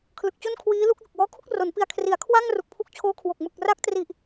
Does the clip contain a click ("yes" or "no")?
no